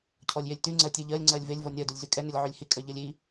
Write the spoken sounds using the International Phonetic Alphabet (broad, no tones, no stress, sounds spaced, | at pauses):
cʰ ɔ lʲ j e lʲ t y ŋ͡ǀ ɜ tʲ ɛ ʎ ɜ lʲ ŋ͡ǀ ɜ lʲ v e lʲ v ɔ nʲ ɜ d u lʲ z y kʼ ɛ n ʏ lʲ ʕ y lʲ h i kʼ ɜ ʎ ɜ lʲ i